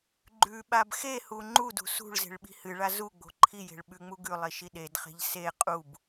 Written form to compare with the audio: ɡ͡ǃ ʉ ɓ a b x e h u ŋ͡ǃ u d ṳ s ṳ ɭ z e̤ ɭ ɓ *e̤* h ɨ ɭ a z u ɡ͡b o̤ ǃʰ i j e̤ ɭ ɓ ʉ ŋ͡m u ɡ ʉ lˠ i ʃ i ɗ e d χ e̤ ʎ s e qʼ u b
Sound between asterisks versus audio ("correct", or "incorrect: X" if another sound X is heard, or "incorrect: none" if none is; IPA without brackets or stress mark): incorrect: i̤